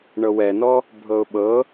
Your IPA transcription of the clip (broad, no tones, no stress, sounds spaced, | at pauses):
ɳ ɤ w ɛ n ɔ | bʱ ɤ ʊ̯ ɓ ɤ